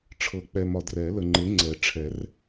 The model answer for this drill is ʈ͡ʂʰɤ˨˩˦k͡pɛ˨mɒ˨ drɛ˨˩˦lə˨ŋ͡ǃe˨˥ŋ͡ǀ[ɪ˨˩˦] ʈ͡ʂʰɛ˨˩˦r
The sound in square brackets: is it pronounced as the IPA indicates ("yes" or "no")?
no